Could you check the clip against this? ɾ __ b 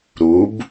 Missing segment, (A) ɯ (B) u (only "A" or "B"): B